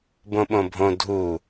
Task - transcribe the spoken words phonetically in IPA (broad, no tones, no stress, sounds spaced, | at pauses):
b õ ɓ õ bʱ õ dʱ u